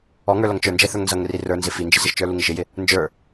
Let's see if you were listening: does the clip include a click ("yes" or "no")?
no